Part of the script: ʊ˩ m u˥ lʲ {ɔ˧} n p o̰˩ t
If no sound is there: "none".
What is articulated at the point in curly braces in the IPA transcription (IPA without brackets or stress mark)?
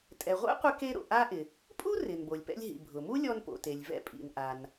ɔ˧